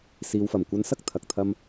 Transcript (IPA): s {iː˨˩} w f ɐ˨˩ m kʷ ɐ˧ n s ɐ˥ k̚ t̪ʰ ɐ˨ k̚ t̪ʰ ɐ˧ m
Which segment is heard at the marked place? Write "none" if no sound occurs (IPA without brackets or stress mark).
iː˨